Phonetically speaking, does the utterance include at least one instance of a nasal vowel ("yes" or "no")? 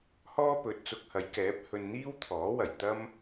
no